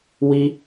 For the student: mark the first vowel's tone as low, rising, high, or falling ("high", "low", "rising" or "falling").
high